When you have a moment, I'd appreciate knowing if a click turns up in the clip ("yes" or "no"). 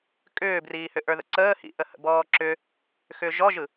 yes